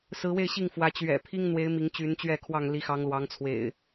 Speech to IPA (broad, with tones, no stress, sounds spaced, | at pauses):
s ɹ̩˨˦ w e˥˨ ɪ̯ ɕ i˥˨ ŋ f w ä˨˦ t͡ɕ ɥ ɛ̰˨˩ pʰ i˦ ŋ n̪ w e˨˦ ɪ̯ m i˨˦ ŋ t͡ɕ y˨˦ n t͡ɕ ɥ ɛ˥˨ kʰ w ɑ˥˨ ŋ l i˨˦ x ɑ˨˦ ŋ l w ɑ˨˦ ŋ t͡sʰ w ḛ˨˩ ɪ̯